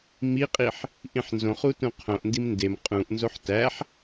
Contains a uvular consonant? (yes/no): yes